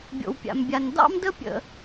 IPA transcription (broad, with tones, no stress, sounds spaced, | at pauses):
bʲ o̰˨ w pʲ a̰˨ m bʲ a˨ n d ɑ̰˥ m d ə˥ pʲ ə̰˨